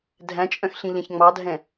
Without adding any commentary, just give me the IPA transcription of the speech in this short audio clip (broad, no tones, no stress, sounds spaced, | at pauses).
dʱ æ̃ t͡ʃʼ œ̃ x ɬ ĩ ʎ ɛ̃ ç ŋ͡m ɑ dʱ ɛ̃